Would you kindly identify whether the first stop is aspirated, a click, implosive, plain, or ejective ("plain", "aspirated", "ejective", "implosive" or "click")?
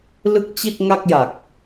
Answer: plain